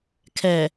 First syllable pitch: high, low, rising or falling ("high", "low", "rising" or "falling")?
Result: low